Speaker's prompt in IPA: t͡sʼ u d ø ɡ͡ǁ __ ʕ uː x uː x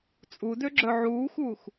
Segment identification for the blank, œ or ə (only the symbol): œ